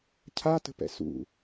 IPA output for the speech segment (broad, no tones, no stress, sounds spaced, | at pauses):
cʰ a t ə̤ p ɛ̰ s ṵ